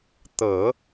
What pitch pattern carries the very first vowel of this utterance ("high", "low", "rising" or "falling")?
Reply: low